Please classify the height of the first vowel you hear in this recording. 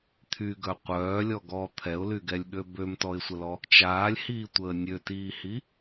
high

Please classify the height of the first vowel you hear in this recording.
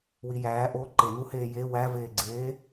high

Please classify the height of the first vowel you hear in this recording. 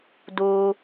high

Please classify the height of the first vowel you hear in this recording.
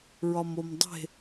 low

